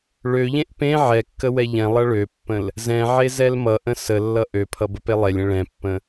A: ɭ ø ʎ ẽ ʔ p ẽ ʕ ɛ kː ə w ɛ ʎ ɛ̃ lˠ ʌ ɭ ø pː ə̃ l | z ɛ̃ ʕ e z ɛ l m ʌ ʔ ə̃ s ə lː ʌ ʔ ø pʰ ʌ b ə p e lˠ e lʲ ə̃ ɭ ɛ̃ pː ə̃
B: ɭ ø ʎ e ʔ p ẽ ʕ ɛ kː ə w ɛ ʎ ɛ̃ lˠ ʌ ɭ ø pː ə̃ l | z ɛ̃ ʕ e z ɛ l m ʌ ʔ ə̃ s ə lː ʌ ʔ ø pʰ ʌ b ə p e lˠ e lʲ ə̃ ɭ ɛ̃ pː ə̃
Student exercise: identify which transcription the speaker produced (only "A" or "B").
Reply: A